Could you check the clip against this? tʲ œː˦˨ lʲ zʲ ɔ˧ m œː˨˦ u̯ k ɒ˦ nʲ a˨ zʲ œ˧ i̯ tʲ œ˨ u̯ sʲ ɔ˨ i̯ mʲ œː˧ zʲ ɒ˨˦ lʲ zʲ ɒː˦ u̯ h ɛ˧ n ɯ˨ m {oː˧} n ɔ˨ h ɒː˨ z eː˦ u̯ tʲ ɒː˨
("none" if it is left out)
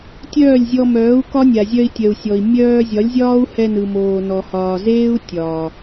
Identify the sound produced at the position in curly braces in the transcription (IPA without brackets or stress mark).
oː˨